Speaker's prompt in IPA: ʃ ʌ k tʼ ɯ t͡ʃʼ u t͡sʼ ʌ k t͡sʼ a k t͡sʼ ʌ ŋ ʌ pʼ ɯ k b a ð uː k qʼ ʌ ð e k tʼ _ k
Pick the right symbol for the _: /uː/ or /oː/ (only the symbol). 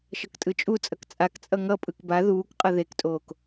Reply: oː